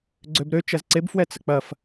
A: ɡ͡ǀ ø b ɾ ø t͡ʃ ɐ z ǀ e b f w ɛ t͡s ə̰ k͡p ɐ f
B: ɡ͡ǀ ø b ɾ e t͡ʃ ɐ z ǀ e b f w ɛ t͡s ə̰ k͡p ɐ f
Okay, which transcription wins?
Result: A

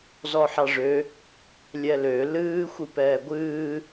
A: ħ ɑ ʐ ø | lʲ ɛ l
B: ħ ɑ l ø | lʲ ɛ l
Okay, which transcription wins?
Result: A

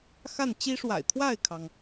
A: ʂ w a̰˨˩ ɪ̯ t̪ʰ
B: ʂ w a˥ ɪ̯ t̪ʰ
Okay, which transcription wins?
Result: A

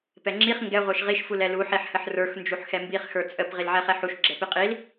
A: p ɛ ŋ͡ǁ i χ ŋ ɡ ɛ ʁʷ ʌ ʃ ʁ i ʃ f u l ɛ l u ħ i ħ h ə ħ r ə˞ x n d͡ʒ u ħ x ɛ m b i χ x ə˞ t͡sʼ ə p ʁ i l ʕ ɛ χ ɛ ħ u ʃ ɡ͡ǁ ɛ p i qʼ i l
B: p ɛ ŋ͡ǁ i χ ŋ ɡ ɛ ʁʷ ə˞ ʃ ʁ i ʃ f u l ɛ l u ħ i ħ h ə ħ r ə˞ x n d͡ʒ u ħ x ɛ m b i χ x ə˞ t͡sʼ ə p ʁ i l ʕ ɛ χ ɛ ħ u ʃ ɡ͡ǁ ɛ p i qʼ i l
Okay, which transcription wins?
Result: B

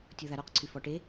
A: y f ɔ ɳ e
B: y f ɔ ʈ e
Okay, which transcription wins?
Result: B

